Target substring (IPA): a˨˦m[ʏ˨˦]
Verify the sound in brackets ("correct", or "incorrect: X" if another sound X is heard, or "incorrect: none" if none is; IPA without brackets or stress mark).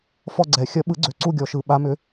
correct